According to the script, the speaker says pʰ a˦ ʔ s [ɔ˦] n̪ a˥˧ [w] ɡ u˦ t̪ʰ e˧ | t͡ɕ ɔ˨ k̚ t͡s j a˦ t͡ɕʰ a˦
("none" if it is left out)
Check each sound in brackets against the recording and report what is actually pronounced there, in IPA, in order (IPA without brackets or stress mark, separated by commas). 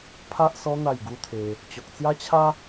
ɔ˦, j